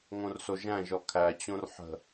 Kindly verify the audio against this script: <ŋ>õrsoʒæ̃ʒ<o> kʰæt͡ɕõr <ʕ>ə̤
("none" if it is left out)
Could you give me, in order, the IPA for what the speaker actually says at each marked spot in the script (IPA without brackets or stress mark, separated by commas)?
ŋ, ɔ, ħ